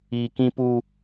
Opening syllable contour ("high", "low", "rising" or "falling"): low